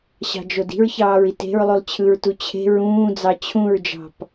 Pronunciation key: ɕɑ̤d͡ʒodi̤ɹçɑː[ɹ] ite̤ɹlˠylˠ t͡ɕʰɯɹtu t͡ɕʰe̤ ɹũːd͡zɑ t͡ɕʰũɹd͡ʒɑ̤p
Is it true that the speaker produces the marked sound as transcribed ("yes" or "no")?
yes